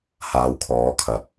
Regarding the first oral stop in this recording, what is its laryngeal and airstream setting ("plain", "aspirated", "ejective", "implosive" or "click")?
aspirated